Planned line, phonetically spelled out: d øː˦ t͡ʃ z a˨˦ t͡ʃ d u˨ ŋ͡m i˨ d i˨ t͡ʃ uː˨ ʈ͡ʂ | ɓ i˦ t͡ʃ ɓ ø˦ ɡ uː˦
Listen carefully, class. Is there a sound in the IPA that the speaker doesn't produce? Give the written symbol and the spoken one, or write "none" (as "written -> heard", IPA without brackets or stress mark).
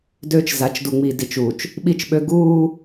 ʈ͡ʂ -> t͡ʃ